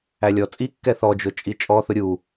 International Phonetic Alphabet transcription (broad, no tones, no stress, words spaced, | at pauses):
ælʲɔt͡sʼikːɛ θɔd͡ʒʊ t͡ʃʼit͡ʃʼɔθʊ ɾʲu